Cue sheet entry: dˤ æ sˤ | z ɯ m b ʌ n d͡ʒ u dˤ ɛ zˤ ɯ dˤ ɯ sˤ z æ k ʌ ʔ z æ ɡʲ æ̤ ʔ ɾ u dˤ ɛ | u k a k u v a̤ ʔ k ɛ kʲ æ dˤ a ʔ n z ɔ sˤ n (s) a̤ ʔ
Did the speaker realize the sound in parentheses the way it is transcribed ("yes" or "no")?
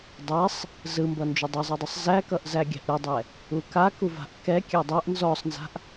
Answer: no